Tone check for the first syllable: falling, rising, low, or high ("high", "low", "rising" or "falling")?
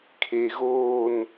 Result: low